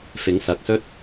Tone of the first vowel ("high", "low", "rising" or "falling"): rising